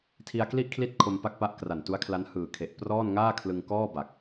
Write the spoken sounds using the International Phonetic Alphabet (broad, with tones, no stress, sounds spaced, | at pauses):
tʰ i˧ a̯ k l i˥˩ ʔ kʰ l i˦˥ t̚ kʰ o˧ m p a˥˩ k̚ p a˦˥ ʔ k r a˨˩ n t u˦˥ a̯ kʰ l a˦˥ n h ɯː˨˩ kʰ e˨˩ ʔ p r ɔː˥˩ n ŋ aː˥˩ kʰ l ɯ˧ ŋ k ɔː˥˩ b a˨˩ k̚